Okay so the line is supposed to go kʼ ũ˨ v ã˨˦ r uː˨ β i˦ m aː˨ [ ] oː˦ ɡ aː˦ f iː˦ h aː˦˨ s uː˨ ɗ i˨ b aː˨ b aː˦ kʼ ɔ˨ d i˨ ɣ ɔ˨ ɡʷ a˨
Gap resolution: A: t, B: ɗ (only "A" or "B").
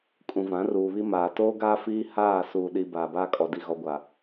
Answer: A